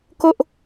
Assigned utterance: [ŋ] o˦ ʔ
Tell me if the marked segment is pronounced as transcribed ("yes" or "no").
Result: no